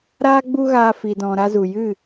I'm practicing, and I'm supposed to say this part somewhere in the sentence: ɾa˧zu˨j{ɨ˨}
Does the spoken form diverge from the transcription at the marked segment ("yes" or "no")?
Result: yes